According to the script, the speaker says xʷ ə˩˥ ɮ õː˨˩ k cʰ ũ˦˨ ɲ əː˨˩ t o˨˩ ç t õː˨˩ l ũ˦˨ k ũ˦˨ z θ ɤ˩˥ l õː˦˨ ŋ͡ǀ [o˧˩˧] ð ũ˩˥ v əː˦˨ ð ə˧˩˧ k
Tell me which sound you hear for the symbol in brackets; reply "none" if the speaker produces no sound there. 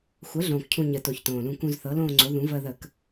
o˩˥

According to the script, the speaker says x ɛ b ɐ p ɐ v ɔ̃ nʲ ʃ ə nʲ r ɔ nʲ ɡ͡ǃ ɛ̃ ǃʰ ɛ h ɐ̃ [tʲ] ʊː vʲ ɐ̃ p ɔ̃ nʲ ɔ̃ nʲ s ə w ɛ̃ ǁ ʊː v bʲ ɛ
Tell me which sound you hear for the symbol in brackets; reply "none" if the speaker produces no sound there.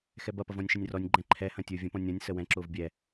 tʲ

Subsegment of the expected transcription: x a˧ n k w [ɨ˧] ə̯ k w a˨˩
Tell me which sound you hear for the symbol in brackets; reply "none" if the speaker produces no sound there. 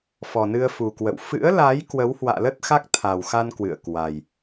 ɨ̰˧˨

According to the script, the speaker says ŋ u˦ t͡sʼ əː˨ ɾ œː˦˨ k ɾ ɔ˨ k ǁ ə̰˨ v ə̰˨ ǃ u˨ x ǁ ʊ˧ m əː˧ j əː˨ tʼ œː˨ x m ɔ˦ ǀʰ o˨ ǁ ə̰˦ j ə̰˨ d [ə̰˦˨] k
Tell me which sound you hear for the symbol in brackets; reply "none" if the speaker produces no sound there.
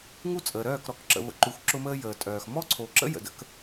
ə̰˦˨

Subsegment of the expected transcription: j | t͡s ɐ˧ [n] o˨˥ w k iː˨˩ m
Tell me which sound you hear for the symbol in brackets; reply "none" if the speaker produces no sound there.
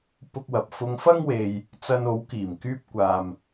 n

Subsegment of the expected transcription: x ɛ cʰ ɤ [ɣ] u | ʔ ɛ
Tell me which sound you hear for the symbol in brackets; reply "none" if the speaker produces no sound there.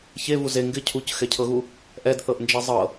ɣ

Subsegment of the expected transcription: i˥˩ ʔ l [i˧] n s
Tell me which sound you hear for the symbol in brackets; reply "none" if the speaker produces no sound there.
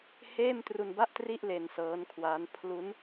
e˧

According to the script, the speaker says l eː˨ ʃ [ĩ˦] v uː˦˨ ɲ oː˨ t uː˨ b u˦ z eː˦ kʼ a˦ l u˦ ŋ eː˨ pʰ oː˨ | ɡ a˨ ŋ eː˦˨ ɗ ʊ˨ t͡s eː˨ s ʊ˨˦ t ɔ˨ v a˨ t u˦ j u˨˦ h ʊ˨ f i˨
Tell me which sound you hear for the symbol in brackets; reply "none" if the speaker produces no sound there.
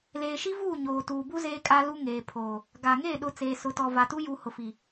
i˦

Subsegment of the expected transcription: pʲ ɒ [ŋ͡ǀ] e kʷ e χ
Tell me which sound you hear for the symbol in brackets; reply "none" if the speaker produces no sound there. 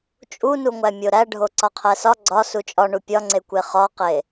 ŋ͡ǀ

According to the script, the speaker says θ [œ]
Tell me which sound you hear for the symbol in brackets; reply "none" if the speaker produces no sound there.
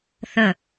ə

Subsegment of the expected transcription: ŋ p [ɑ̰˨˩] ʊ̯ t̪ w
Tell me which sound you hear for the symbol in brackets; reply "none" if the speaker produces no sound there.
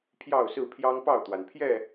ɑ˥˨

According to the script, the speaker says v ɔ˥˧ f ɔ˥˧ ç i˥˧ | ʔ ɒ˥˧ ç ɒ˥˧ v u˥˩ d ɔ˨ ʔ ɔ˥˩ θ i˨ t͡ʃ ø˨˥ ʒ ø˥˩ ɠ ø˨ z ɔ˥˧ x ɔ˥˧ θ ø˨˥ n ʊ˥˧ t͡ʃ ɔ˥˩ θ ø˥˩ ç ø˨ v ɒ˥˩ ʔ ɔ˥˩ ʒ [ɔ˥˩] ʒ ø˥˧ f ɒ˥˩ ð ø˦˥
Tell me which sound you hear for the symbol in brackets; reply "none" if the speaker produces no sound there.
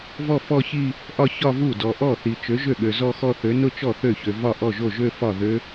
o˥˩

